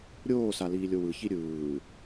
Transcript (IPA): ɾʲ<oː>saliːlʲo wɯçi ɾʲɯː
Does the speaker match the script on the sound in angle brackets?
yes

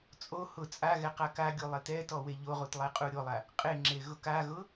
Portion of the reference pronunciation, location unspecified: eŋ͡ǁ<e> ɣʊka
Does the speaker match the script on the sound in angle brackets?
yes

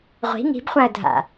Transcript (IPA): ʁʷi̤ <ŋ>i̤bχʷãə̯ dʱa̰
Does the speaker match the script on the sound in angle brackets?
yes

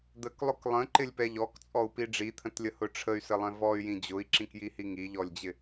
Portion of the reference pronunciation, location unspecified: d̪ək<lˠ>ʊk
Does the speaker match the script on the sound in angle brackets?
yes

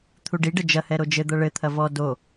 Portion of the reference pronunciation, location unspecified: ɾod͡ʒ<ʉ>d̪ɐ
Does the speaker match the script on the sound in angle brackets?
no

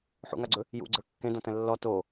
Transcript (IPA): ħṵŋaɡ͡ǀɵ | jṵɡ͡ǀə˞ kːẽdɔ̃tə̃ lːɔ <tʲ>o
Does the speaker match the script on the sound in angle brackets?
no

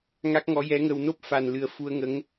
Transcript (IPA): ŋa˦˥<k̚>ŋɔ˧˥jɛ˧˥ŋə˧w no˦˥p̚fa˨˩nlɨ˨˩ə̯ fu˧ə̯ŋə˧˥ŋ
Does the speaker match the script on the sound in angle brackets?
yes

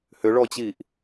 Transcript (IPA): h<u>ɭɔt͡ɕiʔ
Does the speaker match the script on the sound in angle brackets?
no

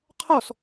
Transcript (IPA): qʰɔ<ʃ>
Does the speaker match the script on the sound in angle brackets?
no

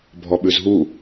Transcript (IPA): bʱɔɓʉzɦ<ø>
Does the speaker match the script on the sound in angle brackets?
no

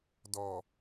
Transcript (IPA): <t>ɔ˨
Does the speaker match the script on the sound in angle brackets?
no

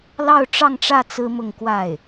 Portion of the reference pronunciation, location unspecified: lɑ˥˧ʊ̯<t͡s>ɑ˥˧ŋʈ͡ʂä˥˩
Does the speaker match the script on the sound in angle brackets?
no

